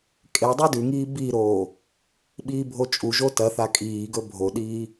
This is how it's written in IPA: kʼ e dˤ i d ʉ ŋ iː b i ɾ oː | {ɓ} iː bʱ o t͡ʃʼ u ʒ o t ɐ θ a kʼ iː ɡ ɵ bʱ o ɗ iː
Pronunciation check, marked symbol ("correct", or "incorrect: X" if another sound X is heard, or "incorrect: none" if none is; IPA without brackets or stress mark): correct